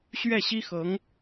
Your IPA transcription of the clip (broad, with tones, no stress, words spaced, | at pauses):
ɕɥɛ˥˩ɕi˥xɤ˧˥ŋ